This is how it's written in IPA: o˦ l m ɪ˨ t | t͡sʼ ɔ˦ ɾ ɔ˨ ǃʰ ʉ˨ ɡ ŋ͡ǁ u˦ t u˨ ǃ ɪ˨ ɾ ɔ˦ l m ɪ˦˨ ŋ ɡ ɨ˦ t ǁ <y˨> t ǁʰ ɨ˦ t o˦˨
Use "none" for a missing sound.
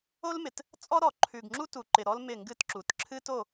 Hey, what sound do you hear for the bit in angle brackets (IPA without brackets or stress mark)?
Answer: u˨